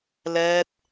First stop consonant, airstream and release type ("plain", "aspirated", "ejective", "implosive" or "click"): plain